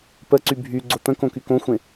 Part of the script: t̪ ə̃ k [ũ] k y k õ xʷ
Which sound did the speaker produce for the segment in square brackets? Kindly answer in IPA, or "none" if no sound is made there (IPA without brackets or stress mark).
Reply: õ